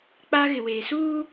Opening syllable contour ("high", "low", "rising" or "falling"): high